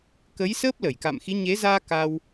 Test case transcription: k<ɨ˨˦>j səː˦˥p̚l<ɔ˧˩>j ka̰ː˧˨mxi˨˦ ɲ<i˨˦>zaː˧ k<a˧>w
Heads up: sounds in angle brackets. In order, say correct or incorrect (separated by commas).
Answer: incorrect, incorrect, incorrect, correct